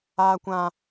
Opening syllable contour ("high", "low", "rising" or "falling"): high